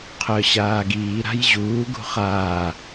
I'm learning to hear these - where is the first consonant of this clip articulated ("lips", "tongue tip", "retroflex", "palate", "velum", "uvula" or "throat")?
uvula